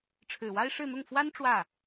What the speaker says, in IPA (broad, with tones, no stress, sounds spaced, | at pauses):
ʈ͡ʂʰ ɻ̩˨˩ w a˥ ɪ̯ ʂ ɻ̩˥˧ n̪ ʊ˥˩ ŋ f w a˥ n ʈ͡ʂ w ä˥˩